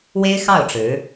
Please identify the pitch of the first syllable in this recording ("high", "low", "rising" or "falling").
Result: high